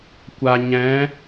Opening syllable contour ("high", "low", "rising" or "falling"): low